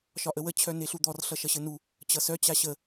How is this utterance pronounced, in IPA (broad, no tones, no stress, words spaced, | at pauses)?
ʃɒʔəwə t͡ɕʰœneɬud̪ɔr ɬʌʃʌɕɘnu | t͡ɕʌsœ t͡ɕaɕə